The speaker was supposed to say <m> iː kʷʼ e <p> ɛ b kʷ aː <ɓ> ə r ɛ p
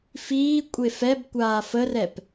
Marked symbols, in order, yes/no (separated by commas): no, no, no